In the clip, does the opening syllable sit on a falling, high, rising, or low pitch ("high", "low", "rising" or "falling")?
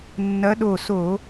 rising